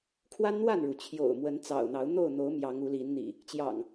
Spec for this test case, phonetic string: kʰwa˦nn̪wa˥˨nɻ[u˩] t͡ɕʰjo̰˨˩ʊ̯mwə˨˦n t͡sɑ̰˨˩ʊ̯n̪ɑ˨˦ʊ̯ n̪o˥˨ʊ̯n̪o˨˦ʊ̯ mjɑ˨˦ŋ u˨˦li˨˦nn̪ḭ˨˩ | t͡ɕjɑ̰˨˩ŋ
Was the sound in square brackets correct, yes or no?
yes